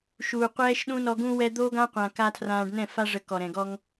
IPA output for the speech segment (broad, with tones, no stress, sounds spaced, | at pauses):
ʃ uː˨ qʷ ɛː˦ ʃ ɗ ũ˦ n ɔ˧ ɡ ũ˧ w ɛ˧ d̪ o˦ ɡ ã˦ qʷ ã˨ k a˧ tʰ r ãː˧ ɖ n ɛ̃˦˨ f a˦ ʐ ə˧ k ɔ˨ ɾ ɛ̃˨ ɡ ɔ˧ ŋ